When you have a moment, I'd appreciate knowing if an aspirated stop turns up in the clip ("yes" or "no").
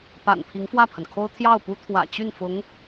yes